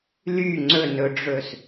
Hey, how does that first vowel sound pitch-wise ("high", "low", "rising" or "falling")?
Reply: falling